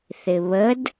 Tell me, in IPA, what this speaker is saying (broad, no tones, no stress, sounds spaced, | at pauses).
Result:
θ ɪ β ə d